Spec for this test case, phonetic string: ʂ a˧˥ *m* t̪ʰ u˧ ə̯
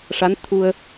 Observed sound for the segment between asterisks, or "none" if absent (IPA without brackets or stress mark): n